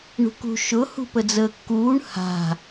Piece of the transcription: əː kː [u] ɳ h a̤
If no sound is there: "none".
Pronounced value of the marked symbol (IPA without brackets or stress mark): uː